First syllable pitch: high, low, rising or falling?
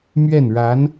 falling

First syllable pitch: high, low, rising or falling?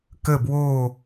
falling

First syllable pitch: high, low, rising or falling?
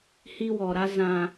high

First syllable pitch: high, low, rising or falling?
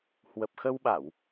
low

